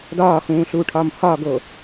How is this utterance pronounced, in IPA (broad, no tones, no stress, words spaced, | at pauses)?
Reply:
dɒːxũː ɬuːʈʰɒːmhɒːɡo